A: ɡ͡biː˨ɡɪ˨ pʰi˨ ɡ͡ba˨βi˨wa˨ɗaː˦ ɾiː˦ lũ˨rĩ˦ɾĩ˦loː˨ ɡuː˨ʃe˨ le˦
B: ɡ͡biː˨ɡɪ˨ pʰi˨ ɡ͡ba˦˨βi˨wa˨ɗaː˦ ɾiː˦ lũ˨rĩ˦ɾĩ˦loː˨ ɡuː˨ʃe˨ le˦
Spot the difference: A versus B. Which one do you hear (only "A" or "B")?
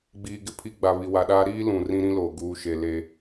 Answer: A